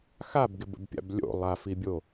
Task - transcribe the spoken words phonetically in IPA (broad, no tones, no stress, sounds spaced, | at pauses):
x a b ɡ ɪ b ə̰ b pʲ a̰ b lʲ o̰ lˠ a f i bʲ o